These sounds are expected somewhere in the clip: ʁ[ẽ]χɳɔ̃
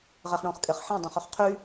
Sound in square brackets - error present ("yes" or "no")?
yes